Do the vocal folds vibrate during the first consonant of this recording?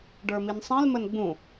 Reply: yes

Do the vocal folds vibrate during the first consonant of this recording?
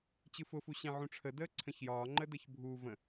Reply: no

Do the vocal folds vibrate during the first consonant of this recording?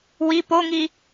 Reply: yes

